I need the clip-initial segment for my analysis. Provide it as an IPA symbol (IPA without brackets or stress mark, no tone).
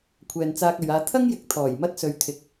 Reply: kʷʰ